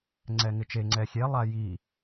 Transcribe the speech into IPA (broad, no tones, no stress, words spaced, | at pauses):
ŋ͡ǀɛŋɪt͡ʃe ŋ͡ǀɛxʲe lˠaji